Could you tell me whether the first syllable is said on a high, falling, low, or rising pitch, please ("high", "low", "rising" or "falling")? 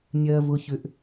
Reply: low